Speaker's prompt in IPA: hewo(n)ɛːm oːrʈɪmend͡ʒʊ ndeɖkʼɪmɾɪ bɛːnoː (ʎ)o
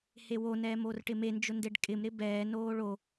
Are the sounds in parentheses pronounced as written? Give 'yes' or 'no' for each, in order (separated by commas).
yes, no